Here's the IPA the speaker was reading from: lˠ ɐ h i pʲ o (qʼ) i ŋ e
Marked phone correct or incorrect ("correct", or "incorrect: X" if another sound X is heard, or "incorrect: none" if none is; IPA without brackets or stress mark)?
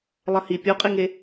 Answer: correct